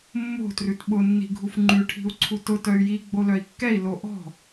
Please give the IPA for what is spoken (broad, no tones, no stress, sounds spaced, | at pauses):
mː o̤ t r ʉ t ɓ ʊ nː i̤ ɡʱ u f ŋ͡ǃ ʉ ʈʰ i̤ u̯ ǀʰ u t ʊ t œ y̯ j i ɡ͡b o l œ i̯ kː ɛ i̯ l o ʔ ɔ̤